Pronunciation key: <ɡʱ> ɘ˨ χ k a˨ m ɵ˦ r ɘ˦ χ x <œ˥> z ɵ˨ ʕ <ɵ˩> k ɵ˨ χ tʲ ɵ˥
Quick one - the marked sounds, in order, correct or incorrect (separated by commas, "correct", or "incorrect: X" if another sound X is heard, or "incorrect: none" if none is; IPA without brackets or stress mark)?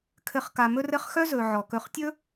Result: incorrect: kʰ, correct, incorrect: ɔ˩